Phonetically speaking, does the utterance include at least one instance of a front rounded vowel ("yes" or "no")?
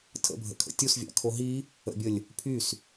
yes